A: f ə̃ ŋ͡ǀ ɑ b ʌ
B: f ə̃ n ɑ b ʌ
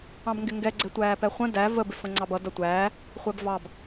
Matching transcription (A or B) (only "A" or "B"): A